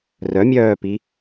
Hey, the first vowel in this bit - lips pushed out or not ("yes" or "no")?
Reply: yes